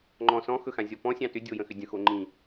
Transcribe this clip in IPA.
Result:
ŋ͡ǃ ɔ̃ s ɔ̃ x ɵ x ã zʲ ɔ p ɔ̃ sʲ ɑ̃ t ʏ dʲ o j ə̃ x ʏ dʲ ə̃ x o ŋ͡ǃ ĩ

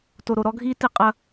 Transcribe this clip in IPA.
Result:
t o˨ ɾ o˨ ɾ ɔ˦ ɡʱ iː˦ t i˦ qʼ ɐ˦

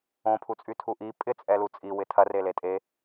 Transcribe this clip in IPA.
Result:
õ pʰ u t͡sʼ y tʰ u ʔ i pʼ ɪ t͡sʼ ɛ l u t͡sʼ i w ɪ tʰ ɐ r e l e tʼ e

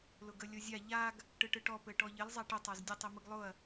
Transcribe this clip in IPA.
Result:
l ʊ ɡ ə lʲ ʊ zʲ a ʎ a ɡ | ʈ ɯ ʈ ɯ ʈ ɔ p ɘ ʈ ɔ ʎ ə l zˤ a ʈ ɘ tˤ a z dʲ ə tˤ i m ɯ ɡ lˠ ʊ ɐ̯

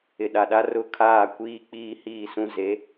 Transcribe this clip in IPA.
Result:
ɪ˨ ɗ a˨ ɗ a˦ r ʊ˦ kʰ aː˦˨ kʷ iː˦ k͡p iː˦ h iː˦˨ s ũ˦ z e˨˦

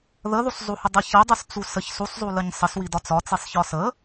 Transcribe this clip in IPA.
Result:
ð ə ð u sˤ zˤ u h ə dˤ ə ç ə dˤ u s t͡s u s ə ç s u sˤ zˤ u l ə ɲ sˤ ə s w i d ɒ t͡s ɒ t͡s i sˤ ç ɒ s ə

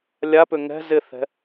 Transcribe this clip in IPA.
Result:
lʲ a p ʏ ŋ ɛ̤ z ɪ θ ɛ̤

